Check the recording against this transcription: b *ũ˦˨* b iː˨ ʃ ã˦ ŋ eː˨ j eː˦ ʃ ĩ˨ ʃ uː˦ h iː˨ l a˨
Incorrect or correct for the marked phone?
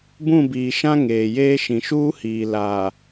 correct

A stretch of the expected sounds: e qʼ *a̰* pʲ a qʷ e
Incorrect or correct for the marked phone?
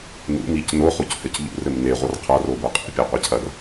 correct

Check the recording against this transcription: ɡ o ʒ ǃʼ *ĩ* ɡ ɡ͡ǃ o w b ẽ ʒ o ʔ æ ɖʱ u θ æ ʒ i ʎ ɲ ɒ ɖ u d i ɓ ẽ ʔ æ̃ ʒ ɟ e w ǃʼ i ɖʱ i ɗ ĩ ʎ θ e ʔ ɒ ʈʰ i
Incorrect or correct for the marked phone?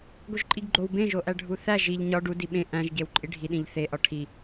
incorrect: i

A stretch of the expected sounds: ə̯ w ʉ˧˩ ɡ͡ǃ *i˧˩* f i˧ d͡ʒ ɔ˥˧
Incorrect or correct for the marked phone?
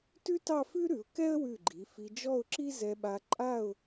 incorrect: i˩˧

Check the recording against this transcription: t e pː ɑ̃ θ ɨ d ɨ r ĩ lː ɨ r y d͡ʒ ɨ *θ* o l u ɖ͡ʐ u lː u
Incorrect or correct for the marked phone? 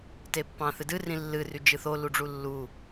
correct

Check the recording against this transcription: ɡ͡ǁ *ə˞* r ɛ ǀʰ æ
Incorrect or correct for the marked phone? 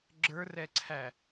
correct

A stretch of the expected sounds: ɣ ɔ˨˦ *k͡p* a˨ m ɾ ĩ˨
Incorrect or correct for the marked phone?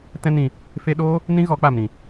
correct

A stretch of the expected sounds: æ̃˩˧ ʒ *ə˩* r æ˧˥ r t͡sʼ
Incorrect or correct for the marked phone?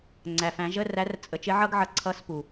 incorrect: ə˧˥˧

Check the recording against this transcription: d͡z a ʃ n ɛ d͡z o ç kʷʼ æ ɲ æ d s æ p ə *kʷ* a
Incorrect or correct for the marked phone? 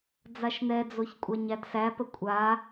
incorrect: kʷʼ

